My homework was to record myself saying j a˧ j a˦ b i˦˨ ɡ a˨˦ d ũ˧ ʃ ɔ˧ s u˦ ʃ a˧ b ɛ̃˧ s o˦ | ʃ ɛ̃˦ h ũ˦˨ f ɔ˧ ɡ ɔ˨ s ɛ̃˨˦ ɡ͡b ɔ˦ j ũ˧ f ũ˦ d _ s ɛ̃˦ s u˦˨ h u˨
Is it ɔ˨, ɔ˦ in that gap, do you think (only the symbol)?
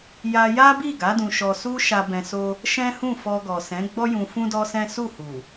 ɔ˦